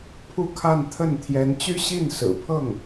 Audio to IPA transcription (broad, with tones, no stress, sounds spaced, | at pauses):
pʰ u˥˧ kʰ a˥˧ n t̪ʰ ə˥˩ n t̪ʰ j ɛ˧˥ n t͡ɕ y˥ ɕ i˥˩ n s ɹ̩˨˩ pʰ ɤ˥˩ ŋ